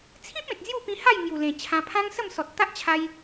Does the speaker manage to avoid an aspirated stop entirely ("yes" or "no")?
no